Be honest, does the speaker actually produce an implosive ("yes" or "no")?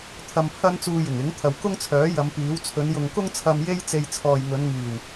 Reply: no